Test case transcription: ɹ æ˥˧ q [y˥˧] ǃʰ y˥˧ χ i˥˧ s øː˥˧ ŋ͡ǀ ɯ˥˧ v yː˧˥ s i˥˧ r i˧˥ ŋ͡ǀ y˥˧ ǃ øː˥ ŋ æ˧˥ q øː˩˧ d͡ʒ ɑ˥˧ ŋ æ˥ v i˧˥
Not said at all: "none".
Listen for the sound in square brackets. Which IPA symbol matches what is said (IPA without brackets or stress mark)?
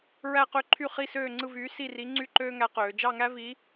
ø˥˧